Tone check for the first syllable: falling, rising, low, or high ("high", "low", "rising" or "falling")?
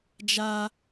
high